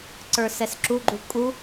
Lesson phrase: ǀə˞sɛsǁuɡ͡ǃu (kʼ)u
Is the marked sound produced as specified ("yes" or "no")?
yes